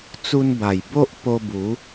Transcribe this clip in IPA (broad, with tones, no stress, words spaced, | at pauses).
t͡su˧nba˨˩jbo˦ʔ po˧bu˨˦